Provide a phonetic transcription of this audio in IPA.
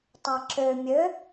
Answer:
tˤaǁø mʲø

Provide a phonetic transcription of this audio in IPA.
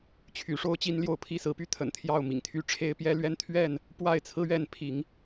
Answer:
t͡ɕʰy˨˦ʂo˦ʊ̯ t͡ɕi˦nljo˥˨ʊ̯ pʰi˥˨sɹ̩˨˦py˦ t̪ʰə̰˨˩n t̪ʰjɑ˥˨ʊ̯ mḭ˨˩ŋt̪ʰy˦ ʈ͡ʂʰe˦ɪ̯pjɛ˦lɥɛ˦n t̪ʰɥɛ˥˨n | pwa˥˨ɪ̯t͡sʰɹ̩˦ɥɛ˥˨n pʰi˨˦ŋ

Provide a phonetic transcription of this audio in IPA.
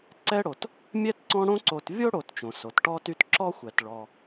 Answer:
ǀɛ˥ɽo˩t | mʲɛ˥tǀɔ̃˦ ɽõ˦ǀo˨tvʲo˥ ɽo˨t t͡ʃõ˩so˩tʈɔ˦ty˦t ǁɔ˥xʷɛ˩t ɭɔ˨

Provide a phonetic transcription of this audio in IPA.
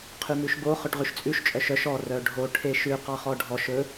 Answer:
qʰymʉʃbo χœʈʁyʃt͡sʼʉʃ t͡ʃʼœʃœʃ ɔ rœɖʱo ʈʰeʃʉ qɑχɔɖʱɔʃ ɵ

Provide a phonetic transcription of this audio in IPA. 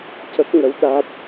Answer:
cə˦˥k̚ŋə˧˥w ɗa˦˥t̚

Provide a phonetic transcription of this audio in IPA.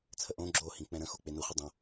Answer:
t͡sʰəʔõ ɡ͡ǁo hĩk͡pɛ̃ɾə̃ xok͡penu χʷɪdˤõ

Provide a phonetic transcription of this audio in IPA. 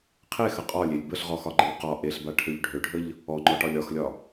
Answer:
qʰexə qʼɒlʲelʲ bəɬʁɔxɒɡ͡ǃəlʲ qɒ ʔeɬbaʈʰøʎ ɖʱøɖʱəʎ | ɔŋ͡ǃɔʈɒlʲ ɒxlʲɒ

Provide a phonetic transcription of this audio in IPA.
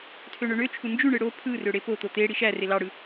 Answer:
tʰøɳøɳøt͡ʃʰu nd͡ʒyɳɯ ɽo pʰɯrø ɽepot̪o t̪e ɽiʃære lɑɽɯ

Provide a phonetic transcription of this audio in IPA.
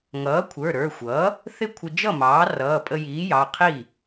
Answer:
ŋʌː˩˥kʷʰə˞˩˧˩ ɾə˞˩˧˩xʷʌː˩˥ | θɪ˥˩kʷʰɪ˧d͡ʒʌ˥˩mɑː˩˥ rʌː˩˧˩pʼə˧jiː˩˥jɑ˩˧˩ qʰi˥˩

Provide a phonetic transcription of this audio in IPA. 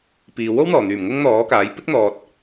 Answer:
piː˨ wo˥wn̪ɔː˨˩n̪yː˨˩m ŋʊ˥ŋn̪ɔː˨˥kaː˨˥j pɪ˥k̚n̪ɔː˨t̚

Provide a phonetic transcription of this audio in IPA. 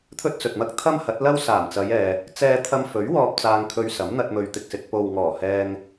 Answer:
t̪ʰɵ˥t̚t͡sɵ˨t̚mɐ˥k̚ t̪ʰɐ˥mhɐ˨˥t̚lɐ˥w saː˨˩mt͡sɐ˨˧jɛː˨ | t͡sɛː˧ t̪ʰɐ˧mfɵ˨˥ɥwɔː˧p̚ t͡saː˧ŋkʰɵ˧ɥsɐ˨˥mn̪ɐ˧t̚ mɵ˨ɥt̪ɪ˨k̚sɪ˨k̚ po˨wŋɔː˨˩hɛː˧ŋ

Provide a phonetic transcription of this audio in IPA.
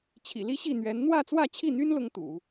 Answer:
t͡ɕʰḭ˨˩li˥ɕi˥˩n̪ɥɛ˧˥n n̪wä˥˧t͡swä˥˧t͡ɕʰi˥˩n̪y˥n lʊ˥ŋt̪ṵ˨˩˦

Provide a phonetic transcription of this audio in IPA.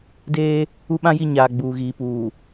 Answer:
deː˦ | u˦ɓã˦ji˦˨ ɲaː˨ ɡ͡buː˨ɣiː˨puː˨

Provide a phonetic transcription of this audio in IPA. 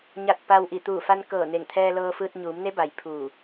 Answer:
ɲa˧˩t̚ pa˧wʔi˧˩ t̪uː˧˩fa˧nkɤː˧˩ ne˧˩ŋt̪ʰɛː˧lɤː˧fɯː˧t̚ ɲuː˩˧mne˧˥ba˩j pʰuː˧˩

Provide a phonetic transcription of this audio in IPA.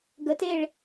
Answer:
ɡəteɭ

